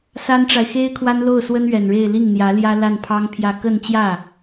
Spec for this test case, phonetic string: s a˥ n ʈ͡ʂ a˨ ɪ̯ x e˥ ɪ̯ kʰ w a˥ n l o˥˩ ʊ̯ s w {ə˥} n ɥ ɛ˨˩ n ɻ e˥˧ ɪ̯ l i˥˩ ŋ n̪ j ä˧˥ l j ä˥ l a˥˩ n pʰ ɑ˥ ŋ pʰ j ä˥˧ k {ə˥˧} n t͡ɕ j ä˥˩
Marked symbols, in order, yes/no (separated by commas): yes, yes